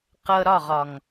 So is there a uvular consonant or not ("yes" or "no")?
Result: yes